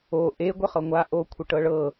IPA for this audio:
o ʔe ɡʷəχɤŋʷa ʔokʷʰə ʈɤɭɤ

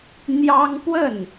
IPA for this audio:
n̪jɑ˥ŋ pwə˥˩n

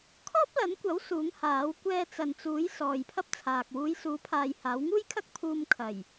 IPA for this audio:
kʰɔː˥p̚lɐ˨˥nkʷɐ˨˥w suː˨˥ŋhaː˨˥w kʷɛː˧t͡sɐ˨nt͡suː˨˥j sɔː˨jpʰɐ˥p̚t͡sʰaː˨k̚ wuː˨˧jsuː˨˧pʰaː˨j haː˨˥wŋuː˥jkʰɐ˥k̚ pʰuː˧mkʰɐ˨˩j

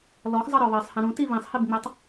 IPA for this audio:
lɔxzˤɤɾɔ βɜsˤhĩɾũ tiβĩsˤhibŋ͡metˤ

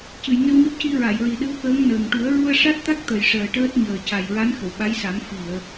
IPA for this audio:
cɨ˨˩˨jŋe˧wɲɔ˦˥p̚ci˧ ɹa˨˩˨jɹi˨˩ɗɨ˧˥wkəː˧˥ŋ nəː˨˩ŋ ʈu˨˩˦ə̯ɹu˧ə̯ʂa˦˥t̚t̪a˦˥k̚ t̪ə˨˩jʂəː˨˩ʈəː˦˥t̚ ɲəː˨˩ca˨˩j ɹa˧˥n xə˨˩˨wɓa˧˥jsa˨˩˦m fi˨˩˨ə̯

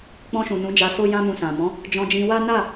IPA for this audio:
k͡pɔ̃˧ʃũ˨ nũ˨˦d͡ʒa˧ so˦jã˦mũ˧sã˨ mɔ̃˨˦ | d͡ʒɔ̃˧d͡ʒĩ˧wa˦ na˦˨

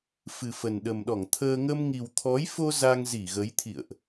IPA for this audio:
fɨ˨˩fə˨˩n ɗə˨˩mɗɔ˧˩ŋt̪ʰəː˧ ŋə˧mŋi˨˩wt̪ʰɔ˨˦jfo˧ za˧ŋzi˧˩ɣə˨˦j t̪ʰḭ˧˨ə̯ʔ

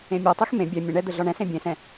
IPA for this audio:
ẽmʲɒtˤex mẽ bʲɛ mʲə̃ɳɛ d̪əɮɒɳɛ̃sẽ bʲẽsɛ̃

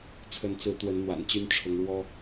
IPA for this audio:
t͡sʰə˨˦nt͡sɹ̩˨˦ t̪wə˨˦nn̪wa̰˨˩nt͡ɕy˦n ʈ͡ʂʰʊ˨˦ŋɻwɔ˦

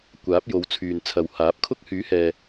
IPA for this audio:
kʷaː˨˥p̚jo˨˧wt͡sʰyː˨n t͡sʰɐ˨whaː˨˥p̚kʰʊ˥k̚ hyː˨˥hɛː˨

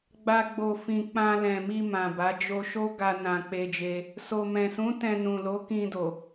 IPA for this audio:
ɡ͡ba˧ɡ͡bo˨fĩ˨k͡pã˧ lɛ̃˨mi˧ mã˨ba˨˦ d͡ʒo˧ʃo˦ɡa˧ nã˧ k͡pe˧d͡ʒe˧ | so˨mɛ̃˨sũ˨˦ tɛ̃˧nũ˨lo˨˦ kĩ˧do˨

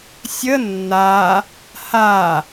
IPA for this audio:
sʲə nːa | ha

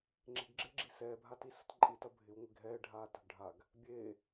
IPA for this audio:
ŋ͡ǁe̤ɡɡ͡ǁɪːɡ͡ǁi sɛːbʱatisə̤t ǃʼitɐ bʱɪwŋʷɪ ɡʱɛːɖʱaː tə̤ɡɖʱaɡ | bʲe

